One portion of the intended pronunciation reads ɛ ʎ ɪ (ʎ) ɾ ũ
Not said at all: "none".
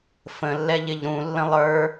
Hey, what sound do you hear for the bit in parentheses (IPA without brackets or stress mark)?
ʎ